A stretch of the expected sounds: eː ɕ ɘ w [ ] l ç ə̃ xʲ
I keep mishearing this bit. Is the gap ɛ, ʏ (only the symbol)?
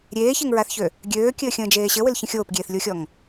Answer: ʏ